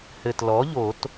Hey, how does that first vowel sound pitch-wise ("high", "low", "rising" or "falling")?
low